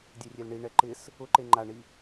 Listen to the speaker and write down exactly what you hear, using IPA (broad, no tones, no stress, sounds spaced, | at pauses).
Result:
dʲ e rʲ e l ɳ i ɳ ɛ ǃ ɪ s | ʊ ǃ e ŋ͡ǃ a ɳ i